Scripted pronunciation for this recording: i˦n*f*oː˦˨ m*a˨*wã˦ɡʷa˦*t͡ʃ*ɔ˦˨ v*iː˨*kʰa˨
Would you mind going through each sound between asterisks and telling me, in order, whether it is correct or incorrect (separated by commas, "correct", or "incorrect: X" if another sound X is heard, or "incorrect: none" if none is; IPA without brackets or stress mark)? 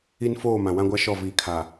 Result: correct, incorrect: ã˨, incorrect: ʃ, correct